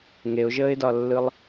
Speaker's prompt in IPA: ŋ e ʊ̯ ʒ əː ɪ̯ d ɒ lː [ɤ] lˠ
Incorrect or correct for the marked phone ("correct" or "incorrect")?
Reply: incorrect